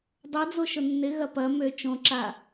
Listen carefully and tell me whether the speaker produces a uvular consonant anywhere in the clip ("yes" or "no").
no